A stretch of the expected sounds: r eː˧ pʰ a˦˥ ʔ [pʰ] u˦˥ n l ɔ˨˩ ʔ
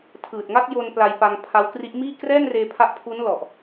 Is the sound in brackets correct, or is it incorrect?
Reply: correct